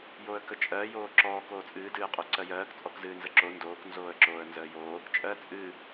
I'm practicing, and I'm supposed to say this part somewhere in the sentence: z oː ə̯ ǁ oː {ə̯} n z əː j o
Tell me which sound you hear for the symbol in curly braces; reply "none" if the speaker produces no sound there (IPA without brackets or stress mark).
ə̯